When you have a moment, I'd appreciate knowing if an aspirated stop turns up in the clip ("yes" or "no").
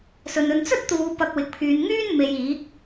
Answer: yes